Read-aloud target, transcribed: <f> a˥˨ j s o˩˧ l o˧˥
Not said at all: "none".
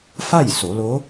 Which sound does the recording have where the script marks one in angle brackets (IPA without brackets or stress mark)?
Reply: f